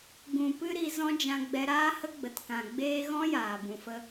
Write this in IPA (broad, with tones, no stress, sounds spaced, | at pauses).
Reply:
ɡ ũ˨ p ɨ˧ ɾ i˧ z ɔ̃˦ d͡ʒ ã˦ ɡ͡b ɛ˦ ɾ aː˦ h ə˦ ɡ͡b ə˨ t k ã˨ ɡ͡b eː˦ ɣ ɔ̃˦ j aː˨ b ũ˨ f ə˦